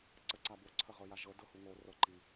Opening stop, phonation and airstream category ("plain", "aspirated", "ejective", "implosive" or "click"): click